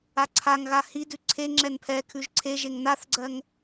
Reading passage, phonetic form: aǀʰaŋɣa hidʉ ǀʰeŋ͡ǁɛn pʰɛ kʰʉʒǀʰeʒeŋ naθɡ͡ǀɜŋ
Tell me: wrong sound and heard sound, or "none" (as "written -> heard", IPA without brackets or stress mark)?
none